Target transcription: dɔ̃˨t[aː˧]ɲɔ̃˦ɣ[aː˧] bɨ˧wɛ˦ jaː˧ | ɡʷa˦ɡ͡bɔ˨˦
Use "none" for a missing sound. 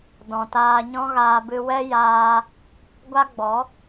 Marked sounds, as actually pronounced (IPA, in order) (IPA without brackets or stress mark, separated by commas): aː˧, aː˧